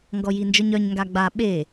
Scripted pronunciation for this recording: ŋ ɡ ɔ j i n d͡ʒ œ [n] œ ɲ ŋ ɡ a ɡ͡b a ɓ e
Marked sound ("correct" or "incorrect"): incorrect